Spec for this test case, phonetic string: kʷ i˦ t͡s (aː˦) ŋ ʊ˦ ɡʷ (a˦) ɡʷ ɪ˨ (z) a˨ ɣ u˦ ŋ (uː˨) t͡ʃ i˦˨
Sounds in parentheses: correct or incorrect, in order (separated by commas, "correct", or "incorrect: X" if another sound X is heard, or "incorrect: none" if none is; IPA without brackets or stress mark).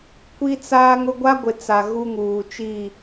correct, correct, incorrect: t͡s, correct